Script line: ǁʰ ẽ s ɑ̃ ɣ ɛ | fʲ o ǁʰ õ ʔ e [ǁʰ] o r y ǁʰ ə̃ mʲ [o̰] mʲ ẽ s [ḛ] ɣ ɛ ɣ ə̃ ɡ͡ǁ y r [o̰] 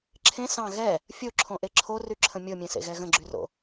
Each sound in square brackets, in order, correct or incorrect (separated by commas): correct, incorrect, correct, correct